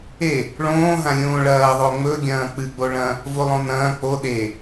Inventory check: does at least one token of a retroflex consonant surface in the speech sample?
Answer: yes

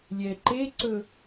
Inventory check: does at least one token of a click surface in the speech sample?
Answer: yes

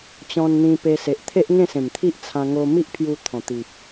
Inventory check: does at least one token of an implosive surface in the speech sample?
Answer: no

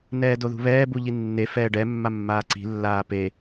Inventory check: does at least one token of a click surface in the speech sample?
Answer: yes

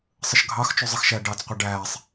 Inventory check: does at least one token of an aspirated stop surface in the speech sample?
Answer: no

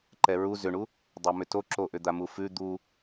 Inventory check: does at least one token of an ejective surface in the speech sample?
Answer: no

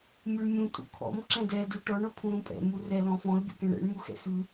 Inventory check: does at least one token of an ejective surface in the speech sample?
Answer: yes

